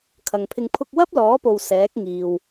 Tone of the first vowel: low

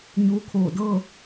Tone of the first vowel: rising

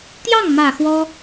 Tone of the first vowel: falling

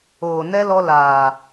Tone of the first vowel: low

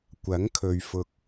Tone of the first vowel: rising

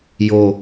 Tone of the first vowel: low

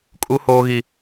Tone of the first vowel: high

